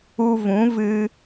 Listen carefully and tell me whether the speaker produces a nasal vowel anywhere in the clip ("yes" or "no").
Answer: yes